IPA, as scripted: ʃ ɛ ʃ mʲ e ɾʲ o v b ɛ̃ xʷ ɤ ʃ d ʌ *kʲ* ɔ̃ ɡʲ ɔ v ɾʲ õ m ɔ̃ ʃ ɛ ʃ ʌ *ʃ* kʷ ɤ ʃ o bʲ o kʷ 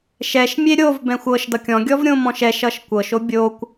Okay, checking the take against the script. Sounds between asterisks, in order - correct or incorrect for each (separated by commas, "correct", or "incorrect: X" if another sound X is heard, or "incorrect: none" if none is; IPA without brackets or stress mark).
correct, correct